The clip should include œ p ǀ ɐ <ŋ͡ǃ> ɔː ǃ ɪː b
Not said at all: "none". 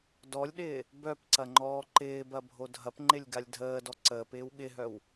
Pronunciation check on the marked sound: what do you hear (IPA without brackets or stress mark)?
ŋ͡ǃ